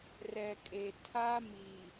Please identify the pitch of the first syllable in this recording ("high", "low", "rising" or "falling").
low